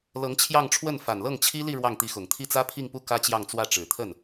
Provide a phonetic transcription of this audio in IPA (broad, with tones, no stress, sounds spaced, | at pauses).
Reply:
l ɤ˧˥ ŋ t͡ɕʰ j ɑ˥˧ ŋ ʈ͡ʂʰ w ə˥˩ n f a˨˩ n l ɤ˥˩ ŋ t͡ɕʰ i˥ l i˥˧ ɻ w ɑ˥˩ ŋ t̪ i˧˥ x ʊ˨˩ ŋ t̪ʰ i˥˩ t͡s ä˥ pʰ i˥˧ ŋ p u˥˩ k ä˥ t͡ɕ j ɑ˥˧ ŋ t͡s w ä˥˩ ʈ͡ʂ ɻ̩˨˩ t̪ʰ ə˥˩ n